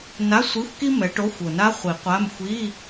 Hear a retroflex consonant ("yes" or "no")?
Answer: yes